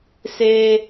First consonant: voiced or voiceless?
voiceless